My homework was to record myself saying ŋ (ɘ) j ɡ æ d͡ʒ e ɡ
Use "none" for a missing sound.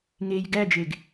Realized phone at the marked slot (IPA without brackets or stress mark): e